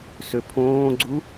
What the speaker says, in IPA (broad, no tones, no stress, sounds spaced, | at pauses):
s ø pʰ õː ɡ͡ǀ u